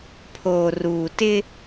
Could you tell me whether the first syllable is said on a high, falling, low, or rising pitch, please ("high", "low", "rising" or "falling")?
low